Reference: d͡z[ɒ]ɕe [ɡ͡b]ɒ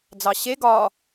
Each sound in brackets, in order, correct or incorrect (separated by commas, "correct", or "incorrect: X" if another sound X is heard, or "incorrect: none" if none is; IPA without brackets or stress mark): incorrect: ɑ, incorrect: ɡ